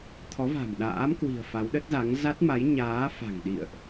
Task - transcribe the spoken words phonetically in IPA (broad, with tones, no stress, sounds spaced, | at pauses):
t̪ʰ ɔ˨˦ v a̤˨˩ m ɗ a̰ː˧˥ m k w i̤˨˩ ə̯ f a˨˦ w ɗ ə˦˥ t̚ z a˨˦ ŋ z a˦˥ t̚ m a˨˦ j ɲ aː˨˦ f a̤˨˩ ŋ ɗ ḭ˧˨ ə̯ ʔ